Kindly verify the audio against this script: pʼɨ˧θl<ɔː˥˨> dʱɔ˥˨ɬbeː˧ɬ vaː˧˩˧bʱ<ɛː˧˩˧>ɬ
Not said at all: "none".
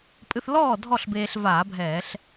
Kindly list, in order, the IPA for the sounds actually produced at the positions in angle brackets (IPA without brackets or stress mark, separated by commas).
ɔː˥˨, ɛː˧˩˧